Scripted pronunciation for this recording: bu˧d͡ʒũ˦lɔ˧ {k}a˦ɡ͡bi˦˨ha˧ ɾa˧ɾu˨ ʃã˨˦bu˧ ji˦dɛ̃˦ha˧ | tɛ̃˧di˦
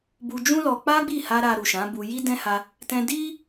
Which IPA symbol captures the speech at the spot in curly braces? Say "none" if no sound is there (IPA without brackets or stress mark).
k͡p